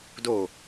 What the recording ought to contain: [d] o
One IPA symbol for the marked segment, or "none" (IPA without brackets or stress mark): d